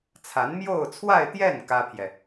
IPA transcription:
t͡sʰa˧˥nmjo˥˧ʊ̯t͡sʰwa˥˧ɪ̯t̪jɛ˥˩n kä˥pʰjɛ˨

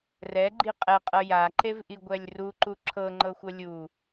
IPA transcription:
rɛɡ͡ǃi qʼɛqʼɤ jaǃevʔiɡʷɛlʲ ruǃu ǁʰɤŋ͡ǃɤxʷɤ lʲu

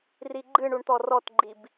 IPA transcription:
riɡ͡ǃɨɳuɳ t̪ɔrɔtɡ͡ǃib

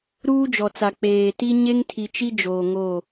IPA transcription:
ɾuː˦d͡ʒɔ˨t͡sa˨ k͡peː˨ti˦ ɲe˦ŋtʰi˨t͡ʃi˦ d͡ʒoː˨ŋo˦˨

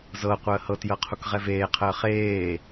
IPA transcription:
zɤ qʷəːhɤtjɤ qʰukʁɛveːqʰəː χeː

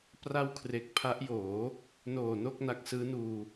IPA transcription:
pra˥˩w kʰre˦˥k̚ pʰa˦˥ʔjoː˩˦ | noː˨˩no˥˩k̚ na˦˥k̚sɯː˦˥nuː˧

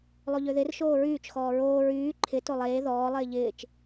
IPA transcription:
lˠoʎøðɪr ʃoːɹyːt͡ʃ xɔːɹoː ɹyː ǃʰɪ tolˠeː ðɔː lˠɪːʎɪːt͡ʃ

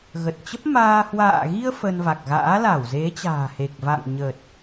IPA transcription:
ɣə˨˩t̚t͡ɕə˦˥p̚maː˧ hwa̰ː˧˨ɣi˧ə̯ fə˧nva˨˩k̚ ɣa̰ː˧˥la˧˩w ze˨˦t͡ɕa̤ː˨˩he˨˩k̚va̰˧˨ŋ ɲə˨˩t̚

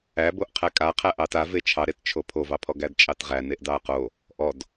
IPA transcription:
æboʔ qʰækʼaqʰæ ʔɑta vet͡ʃʰɑɾett͡ʃʰo pʰovɑpʰɔɡæd t͡ʃʼɑtʁæneʔ dɑɐ̯qo | ʔɔd

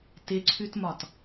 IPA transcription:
tɪǀʰʉtmɒt

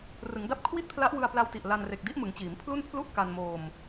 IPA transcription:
rɯ˩˦ŋda˦˥p̚ kʰwi˥˩t̚pʰla˦˥ʔwɯ˧a̯ pla˧wti˨˩ʔ la˧nre˨˩k̚di˦˥ʔmɯ˩˦ŋ t͡ɕiː˩˦mpʰlu˥˩npʰlu˥˩ʔ ka˧nmoː˧m

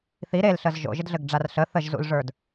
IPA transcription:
θi ɾelɬəz ʒo̰ʒɘdɮɘɡɖ͡ʐar ɬə θəʒzṵlʐə˞d

